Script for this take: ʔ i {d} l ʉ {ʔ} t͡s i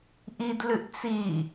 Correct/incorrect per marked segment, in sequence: correct, correct

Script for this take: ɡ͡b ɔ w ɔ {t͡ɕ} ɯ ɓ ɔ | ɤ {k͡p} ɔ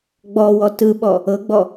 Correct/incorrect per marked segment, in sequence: incorrect, incorrect

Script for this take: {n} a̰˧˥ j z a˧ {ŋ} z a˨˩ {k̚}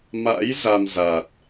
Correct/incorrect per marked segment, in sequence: incorrect, incorrect, incorrect

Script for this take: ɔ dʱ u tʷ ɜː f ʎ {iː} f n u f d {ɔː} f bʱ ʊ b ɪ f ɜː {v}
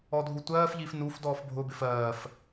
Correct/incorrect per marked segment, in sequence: correct, correct, incorrect

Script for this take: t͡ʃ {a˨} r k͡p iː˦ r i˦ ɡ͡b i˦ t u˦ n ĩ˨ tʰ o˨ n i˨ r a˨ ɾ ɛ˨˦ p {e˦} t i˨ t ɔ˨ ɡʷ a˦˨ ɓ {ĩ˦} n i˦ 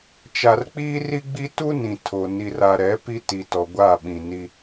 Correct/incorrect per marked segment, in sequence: correct, incorrect, incorrect

